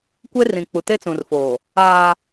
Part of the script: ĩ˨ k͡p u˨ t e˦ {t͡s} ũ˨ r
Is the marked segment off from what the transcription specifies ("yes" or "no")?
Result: no